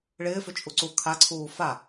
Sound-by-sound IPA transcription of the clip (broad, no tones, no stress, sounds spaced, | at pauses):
ɭ ɪː f ʏ t͡ʃʼ u ǀ u kʰ a ǀʰ uː f a